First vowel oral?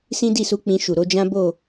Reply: no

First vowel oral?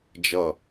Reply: yes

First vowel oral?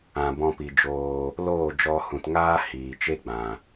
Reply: no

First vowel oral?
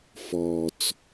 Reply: yes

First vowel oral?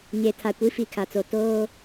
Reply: yes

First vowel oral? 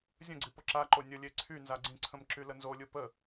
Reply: no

